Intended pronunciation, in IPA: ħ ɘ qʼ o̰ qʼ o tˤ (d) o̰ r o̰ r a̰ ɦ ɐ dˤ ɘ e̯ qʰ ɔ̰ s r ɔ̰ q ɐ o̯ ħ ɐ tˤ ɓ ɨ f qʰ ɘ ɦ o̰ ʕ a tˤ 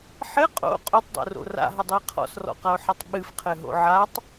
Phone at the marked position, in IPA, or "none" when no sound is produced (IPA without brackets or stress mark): dˤ